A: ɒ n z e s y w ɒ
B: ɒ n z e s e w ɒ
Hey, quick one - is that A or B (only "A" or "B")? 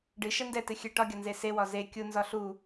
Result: B